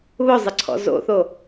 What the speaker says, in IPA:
β ʊ zˤ ɪ ǀʰ ɔ̰ z o̰ θ o

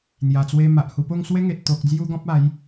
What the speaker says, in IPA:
n̪ j a˨˩ t͡s w e˧ m a˨ ʔ h u˧ p o˥˧ ŋ s w e˦ ŋ e˨ t̚ t̪ o˨ k̚ d͡z j u˧ ɡ ɔ̃˦ p̚ a˨˦ j

